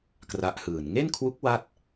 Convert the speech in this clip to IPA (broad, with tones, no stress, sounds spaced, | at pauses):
k r a˦˥ ʔ h ɯː˨˩ n ŋ e˥˩ n kʰ w u˦˥ k̚ w a˥˩ t̚